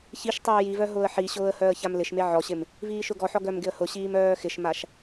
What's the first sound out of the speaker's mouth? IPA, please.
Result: ç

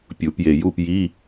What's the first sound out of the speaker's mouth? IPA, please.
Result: pʲ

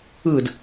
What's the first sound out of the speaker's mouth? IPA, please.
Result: ɯ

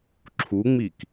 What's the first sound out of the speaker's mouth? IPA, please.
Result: ǁʰ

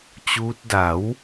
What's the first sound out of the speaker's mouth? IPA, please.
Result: t͡ɕ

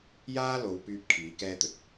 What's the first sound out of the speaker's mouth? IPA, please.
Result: j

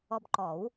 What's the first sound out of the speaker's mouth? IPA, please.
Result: ɔ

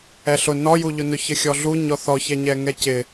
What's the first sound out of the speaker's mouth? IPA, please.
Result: ɛ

